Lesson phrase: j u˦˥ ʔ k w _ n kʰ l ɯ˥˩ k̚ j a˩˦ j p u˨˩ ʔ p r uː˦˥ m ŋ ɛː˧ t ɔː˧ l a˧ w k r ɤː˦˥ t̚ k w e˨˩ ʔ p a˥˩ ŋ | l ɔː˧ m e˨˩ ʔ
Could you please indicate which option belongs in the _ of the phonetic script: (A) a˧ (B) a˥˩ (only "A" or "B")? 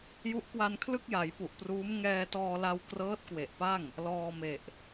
A